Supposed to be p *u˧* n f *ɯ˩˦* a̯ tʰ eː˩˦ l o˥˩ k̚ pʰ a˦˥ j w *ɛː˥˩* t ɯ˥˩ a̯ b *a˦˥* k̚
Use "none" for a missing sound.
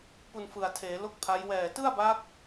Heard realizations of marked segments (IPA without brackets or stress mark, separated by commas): u˧, ɯ˨˩, ɛː˨˩, a˦˥